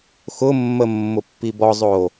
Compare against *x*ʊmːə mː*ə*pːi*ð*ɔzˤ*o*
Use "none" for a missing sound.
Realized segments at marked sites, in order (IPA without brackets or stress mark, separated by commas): x, ʊ, b, oː